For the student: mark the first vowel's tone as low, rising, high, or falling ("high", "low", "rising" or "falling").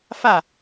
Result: falling